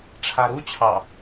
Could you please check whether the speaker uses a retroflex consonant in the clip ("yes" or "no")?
yes